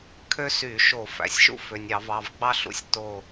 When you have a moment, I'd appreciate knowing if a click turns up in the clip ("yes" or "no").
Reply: no